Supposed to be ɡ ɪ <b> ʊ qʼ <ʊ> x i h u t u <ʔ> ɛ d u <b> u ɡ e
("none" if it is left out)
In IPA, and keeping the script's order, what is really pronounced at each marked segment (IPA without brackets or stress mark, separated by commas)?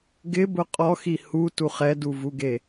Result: b, ɔ, χ, v